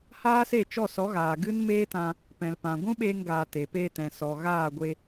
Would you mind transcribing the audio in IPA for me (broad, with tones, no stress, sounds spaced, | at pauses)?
h aː˦ s e˦˨ t͡ʃ ɔ˦˨ s ɔ˨˦ ɣ aː˨ ɡ ɨ˦ n m eː˦ t ã˧ | p ɛ̃˨ l p ã˨ ɡʷ ũ˦ ɓ eː˧ ŋ ɡ aː˨ t e˨ p eː˧ t ɛ̃˨ s ɔ˨ ɣ aː˦˨ ɡʷ e˧